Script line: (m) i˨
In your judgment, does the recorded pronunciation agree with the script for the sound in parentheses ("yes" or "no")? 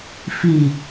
no